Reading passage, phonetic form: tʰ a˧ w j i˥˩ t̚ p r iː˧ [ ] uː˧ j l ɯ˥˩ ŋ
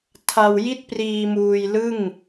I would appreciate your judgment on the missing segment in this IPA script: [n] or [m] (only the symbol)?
m